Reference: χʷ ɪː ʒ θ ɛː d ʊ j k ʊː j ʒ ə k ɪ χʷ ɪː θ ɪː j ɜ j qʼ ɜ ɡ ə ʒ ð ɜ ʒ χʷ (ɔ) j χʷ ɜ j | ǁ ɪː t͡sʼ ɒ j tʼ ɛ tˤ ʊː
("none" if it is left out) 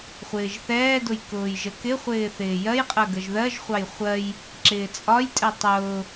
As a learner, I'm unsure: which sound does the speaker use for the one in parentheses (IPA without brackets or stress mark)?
ɑ